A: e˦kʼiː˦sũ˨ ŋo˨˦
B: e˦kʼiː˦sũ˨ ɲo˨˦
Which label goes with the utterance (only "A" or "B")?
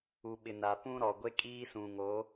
A